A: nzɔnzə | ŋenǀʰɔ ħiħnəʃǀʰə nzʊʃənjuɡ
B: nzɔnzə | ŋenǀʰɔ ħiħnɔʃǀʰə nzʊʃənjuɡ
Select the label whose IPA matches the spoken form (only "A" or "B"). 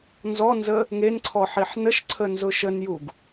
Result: A